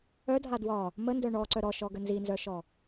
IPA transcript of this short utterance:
œ dʱ a d w ɒ | m ə n d œ ɳ ɔ ǀ œ ɾ ɔ ʃ ɔ ɡ ə n z i n z œ ʃ ɔ

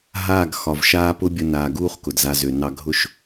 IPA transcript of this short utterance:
ɦ aː˦˨ ɡ x ɒ˨ v ʃ aː˦ p ʊ˦ bʲ ə˧ n aː˨ ɡ uː˦ χ k ʊ˨ d z a˧ z ø˨ n ɑ˧ ɡʱ ʊ˦ ʃ

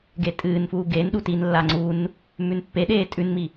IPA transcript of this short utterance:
ɡ e tʼ ɨː n f uː ɡ e n ɗ u t i n lː a ŋ͡ǀ u n | m ʉ n pː e ɗ eː tʼ ʉ n m i

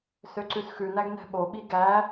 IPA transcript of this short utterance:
s ø ǀ ʉ s x ʉ n æ ɡ n ɛ̤ ɓ o ɓ i ɡ æ

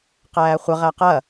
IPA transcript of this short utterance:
q æː χʷ ə ʁ æ q ɐ

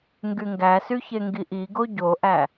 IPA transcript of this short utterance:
ŋ ɡ y ŋ ɡ æ s y ç e ŋ ɡ i ʔ i ɡ o ɟ o ʔ æ

